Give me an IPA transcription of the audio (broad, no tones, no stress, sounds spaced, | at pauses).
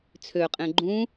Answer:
t͡sʰ ø qʼ ẽ ɡ͡ǃ ũ